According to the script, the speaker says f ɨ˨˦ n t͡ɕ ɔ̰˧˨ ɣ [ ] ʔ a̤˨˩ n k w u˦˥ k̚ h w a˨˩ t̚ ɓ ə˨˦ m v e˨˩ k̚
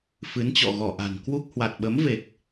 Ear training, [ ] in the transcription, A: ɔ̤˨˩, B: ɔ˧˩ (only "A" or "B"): B